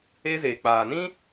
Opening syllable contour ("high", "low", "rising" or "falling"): high